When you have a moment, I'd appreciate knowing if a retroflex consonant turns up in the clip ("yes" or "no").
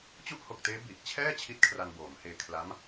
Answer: no